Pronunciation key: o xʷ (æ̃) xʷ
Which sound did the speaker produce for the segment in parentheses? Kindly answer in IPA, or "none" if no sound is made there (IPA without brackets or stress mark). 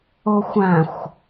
æ̃